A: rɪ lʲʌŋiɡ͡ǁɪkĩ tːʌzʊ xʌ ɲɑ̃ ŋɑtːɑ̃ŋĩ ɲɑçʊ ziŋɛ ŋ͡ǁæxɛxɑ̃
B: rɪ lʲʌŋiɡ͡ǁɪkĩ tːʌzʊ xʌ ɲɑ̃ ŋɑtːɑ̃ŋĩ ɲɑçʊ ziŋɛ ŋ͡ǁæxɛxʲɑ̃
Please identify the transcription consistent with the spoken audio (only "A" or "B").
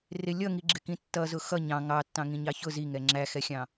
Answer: B